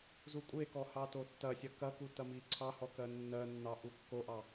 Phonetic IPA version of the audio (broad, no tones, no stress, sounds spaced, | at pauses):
z u kʷʼ e k ɔ h ɑ t o tː ɐ sʲ ɐ k ɐ k u t ɐ m i ǀʰ ɑ h ɔ k ɜ nː ɜ nː ɑ ʔ u kː o ʔ ɑ